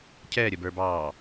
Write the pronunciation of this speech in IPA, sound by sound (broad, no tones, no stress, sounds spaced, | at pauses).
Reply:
cʰ ɛː ɾʲ ə b ə˞ b ɑː